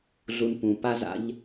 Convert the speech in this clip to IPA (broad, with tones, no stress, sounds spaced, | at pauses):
ɮ u˨ n p ũ˩ p a˦ z a̰˦ ʎ